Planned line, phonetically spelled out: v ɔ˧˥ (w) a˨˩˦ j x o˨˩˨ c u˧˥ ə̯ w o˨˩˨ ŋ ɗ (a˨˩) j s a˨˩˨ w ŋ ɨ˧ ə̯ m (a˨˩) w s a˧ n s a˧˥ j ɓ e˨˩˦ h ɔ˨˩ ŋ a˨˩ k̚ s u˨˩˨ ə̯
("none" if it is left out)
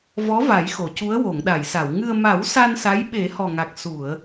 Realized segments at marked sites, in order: v, a˨˩˨, a˨˩˦

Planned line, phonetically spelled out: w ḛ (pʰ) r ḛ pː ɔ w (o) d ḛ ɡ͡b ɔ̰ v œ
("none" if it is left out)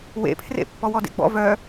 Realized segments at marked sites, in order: pʰ, ɔ

